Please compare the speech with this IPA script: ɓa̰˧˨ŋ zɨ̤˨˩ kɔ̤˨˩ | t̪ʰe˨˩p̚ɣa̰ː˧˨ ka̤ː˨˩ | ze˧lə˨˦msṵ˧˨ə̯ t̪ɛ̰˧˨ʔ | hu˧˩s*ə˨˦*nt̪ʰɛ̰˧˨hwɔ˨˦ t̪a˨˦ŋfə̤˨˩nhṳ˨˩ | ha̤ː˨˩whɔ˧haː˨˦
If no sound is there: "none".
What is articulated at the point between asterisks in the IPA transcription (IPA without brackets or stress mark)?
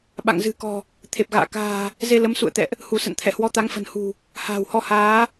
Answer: ə̰˧˨